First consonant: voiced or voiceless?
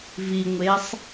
voiced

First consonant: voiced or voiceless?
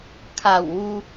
voiceless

